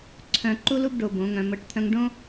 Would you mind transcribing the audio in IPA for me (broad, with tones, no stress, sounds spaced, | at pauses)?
ǀʰ œ̃˨ ǃ u˦ l u˦ b ɖ o˧ b õ˨˦ ŋ œ̃˧ m ɤ˧ ʈ t̪ʰ œ̃˦ ŋ ɖ õ˦